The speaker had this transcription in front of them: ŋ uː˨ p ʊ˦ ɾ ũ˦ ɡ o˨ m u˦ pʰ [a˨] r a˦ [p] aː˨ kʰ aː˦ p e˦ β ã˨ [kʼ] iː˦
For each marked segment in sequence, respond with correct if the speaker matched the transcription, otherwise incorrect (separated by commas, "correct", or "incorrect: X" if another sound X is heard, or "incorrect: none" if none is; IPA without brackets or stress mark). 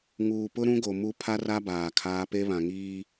incorrect: a˦, incorrect: b, incorrect: ŋ